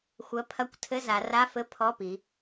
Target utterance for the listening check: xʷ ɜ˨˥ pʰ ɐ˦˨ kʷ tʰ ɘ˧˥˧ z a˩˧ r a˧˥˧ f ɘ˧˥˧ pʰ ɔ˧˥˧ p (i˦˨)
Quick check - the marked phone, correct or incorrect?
incorrect